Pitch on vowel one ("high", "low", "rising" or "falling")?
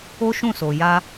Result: high